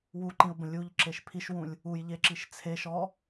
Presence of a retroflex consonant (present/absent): absent